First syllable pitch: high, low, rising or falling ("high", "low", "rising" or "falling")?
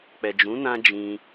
low